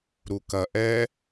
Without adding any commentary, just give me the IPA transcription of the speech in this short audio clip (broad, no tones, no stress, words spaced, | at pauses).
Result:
ɾukɐ ʔɛ